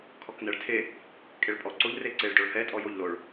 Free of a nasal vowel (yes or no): yes